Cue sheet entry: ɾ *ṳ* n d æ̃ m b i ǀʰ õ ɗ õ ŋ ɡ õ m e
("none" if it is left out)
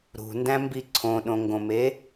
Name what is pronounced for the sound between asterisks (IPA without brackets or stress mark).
ṳ